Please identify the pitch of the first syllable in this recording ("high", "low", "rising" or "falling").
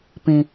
low